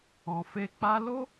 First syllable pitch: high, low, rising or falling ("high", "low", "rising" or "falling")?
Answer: low